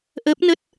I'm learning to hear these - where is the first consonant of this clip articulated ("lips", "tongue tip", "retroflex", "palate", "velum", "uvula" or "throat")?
throat